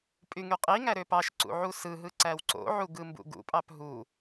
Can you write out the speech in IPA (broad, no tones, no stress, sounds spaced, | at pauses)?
pʼ y ŋ y qʼ i ŋ æ ɾ ø p ɑ ʃ ǀ ṵ ʕ u s ɯ ɦ ɯ ǀ æ w ǀ o̰ ʕ u ɡ ɯ m b ṵ ɡ ṵ pʼ ɑ p ɦ u